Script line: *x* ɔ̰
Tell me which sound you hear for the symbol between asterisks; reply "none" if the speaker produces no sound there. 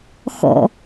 x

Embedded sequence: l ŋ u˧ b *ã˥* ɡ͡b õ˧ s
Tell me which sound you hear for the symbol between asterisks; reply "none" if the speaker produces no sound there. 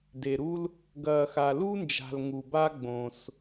a˥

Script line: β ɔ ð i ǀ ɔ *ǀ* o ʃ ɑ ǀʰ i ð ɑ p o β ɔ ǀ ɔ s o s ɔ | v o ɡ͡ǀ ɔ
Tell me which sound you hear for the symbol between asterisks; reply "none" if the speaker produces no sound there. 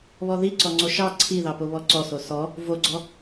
ŋ͡ǀ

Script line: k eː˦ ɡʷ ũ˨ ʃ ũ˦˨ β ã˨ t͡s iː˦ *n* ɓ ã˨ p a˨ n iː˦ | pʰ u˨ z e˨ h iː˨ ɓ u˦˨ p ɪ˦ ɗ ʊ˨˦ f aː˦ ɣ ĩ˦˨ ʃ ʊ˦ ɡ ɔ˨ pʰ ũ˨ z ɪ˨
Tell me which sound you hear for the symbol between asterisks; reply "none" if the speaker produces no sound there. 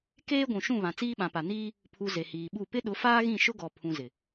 none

